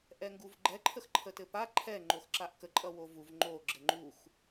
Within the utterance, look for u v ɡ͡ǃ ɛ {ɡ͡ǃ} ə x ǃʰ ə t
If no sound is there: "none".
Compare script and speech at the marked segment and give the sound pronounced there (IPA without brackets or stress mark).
ǃʰ